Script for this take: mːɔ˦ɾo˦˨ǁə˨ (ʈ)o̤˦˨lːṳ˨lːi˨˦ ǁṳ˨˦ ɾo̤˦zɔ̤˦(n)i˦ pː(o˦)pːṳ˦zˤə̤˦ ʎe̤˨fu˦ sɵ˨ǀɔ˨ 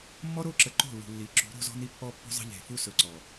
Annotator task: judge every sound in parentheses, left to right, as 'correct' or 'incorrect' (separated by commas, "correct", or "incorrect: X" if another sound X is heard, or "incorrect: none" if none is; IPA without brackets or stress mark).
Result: incorrect: ǃ, correct, incorrect: ɔ˦